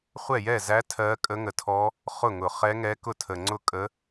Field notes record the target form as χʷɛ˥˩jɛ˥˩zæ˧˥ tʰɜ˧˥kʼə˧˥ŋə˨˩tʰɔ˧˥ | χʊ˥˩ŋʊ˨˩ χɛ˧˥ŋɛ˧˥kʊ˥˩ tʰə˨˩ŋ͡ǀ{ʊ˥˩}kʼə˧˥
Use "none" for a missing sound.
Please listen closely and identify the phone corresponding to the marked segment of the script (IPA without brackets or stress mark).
ʊ˥˩